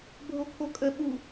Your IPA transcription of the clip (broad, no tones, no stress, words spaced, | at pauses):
bʱokʰokʼə ɓu